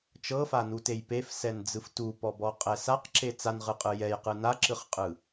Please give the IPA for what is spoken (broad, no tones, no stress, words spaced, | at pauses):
t͡ʃɤfanutej pefsɛnd͡zɯf tupɔbɔqʼɛ saqǁe t͡sanʁɯqʼɯ jɛjqɯ naǁɯχqʼɯ